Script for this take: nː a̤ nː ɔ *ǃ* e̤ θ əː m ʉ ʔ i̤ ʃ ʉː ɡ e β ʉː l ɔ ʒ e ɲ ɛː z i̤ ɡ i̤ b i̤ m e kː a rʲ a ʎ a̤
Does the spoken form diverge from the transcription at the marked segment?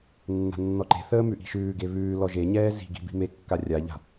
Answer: no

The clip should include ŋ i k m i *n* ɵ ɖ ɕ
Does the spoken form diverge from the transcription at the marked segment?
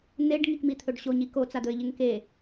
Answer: yes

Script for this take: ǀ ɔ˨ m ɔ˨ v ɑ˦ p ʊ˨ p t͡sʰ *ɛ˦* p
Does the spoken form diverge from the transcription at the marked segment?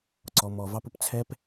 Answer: no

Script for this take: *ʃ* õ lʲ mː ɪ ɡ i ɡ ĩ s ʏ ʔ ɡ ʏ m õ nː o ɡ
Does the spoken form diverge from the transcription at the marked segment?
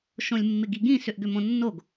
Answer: no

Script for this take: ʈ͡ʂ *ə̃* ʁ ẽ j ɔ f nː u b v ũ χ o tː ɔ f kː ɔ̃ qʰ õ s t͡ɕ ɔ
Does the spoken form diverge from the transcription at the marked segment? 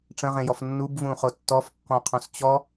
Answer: no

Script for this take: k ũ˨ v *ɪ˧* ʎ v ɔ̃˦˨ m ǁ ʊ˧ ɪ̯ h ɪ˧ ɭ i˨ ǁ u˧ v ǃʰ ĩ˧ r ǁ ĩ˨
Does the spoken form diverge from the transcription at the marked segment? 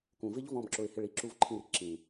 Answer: yes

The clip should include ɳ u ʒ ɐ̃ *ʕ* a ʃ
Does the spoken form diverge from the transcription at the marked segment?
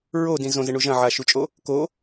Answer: no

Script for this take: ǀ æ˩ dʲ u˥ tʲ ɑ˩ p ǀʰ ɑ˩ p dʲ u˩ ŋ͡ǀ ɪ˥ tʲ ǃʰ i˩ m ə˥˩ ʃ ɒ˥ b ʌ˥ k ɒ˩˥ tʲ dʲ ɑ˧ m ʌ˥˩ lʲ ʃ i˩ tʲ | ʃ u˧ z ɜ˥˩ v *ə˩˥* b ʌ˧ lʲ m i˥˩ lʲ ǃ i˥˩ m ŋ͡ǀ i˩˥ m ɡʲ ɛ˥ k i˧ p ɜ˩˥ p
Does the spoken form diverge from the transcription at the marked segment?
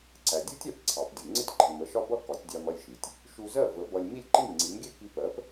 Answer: no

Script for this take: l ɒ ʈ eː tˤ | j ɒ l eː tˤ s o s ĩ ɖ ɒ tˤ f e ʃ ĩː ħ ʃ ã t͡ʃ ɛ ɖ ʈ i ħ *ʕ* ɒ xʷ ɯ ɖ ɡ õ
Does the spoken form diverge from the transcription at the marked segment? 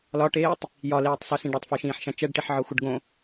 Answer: no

